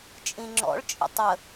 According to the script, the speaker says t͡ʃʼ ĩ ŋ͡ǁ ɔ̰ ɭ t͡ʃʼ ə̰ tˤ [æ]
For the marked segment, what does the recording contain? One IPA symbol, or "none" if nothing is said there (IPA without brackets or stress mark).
ə